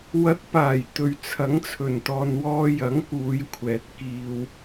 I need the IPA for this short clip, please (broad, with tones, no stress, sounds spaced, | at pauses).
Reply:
w ɐ˨˥ t̚ p aː˨˩ j t̪ ɵ˨ ɥ t͡sʰ ɐ˨˥ ŋ t͡sʰ ɵ˨˩ n t̪ ɔː˨ n w ɔː˧ j ɐ˨˥ ŋ k uː˨˧ j kʷʰ ɛː˨ t̚ k iː˧ w